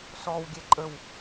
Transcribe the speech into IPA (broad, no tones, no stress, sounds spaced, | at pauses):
s ɔ w ɡʲ ɛ ǃʼ ə w